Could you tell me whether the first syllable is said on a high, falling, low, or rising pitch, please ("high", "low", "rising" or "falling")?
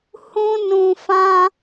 high